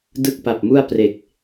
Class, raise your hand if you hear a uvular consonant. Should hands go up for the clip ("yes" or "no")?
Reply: no